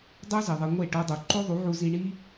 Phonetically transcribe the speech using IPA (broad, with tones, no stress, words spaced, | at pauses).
dˤo˦ zi˨ðˤe˧ ŋʷe˦˨ʈo˧dˤu˨ ǃo˦ðˤu˨˦ʕu˧zi˧ ɳi˦